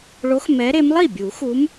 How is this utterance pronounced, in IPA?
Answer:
ɭo˨˦x mɛ˨˦ɾe˨˦m lˠi˥˩bʲu˨˩˦xu˨˦m

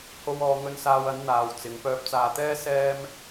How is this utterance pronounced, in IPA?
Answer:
ho˧wɔː˨˧ ŋɵ˧nsaː˧wɐ˨˥n n̪aː˨w t͡sɪ˨˧ŋ pœː˧p̚t͡saː˧t̪ɛː˥ sɛː˥m

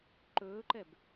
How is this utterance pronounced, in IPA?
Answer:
ǃɵːǃɛb

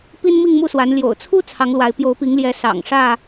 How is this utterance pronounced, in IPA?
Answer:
pi˦nmi˥˨ŋmu˥˨swa˨˦n ljo̰˨˩ʊ̯t͡sʰu˦ t͡sʰɑ˨˦ŋlwa˨˦ɪ̯ pjo˨˦ʊ̯pi˨˦ŋljɛ˨˦ sɑ̰˨˩ŋ ʂä˥˨

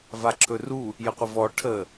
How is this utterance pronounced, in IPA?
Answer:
vaǁʰɵru | jəqʷəvɔ ʈʰə

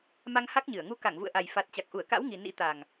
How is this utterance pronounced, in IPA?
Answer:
ma˧ŋha˦˥k̚ɲɨ˧˩ə̯ ŋu˨˦ka˧˩ŋvṵ˧˨ə̯ʔa˨˩j fa˨˩t̚ t͡ɕa˨˩k̚ ʔu˧˩ə̯ka̰˧˥w ŋi˨˩ nḭ˧˥ t̪a˨˩ŋ

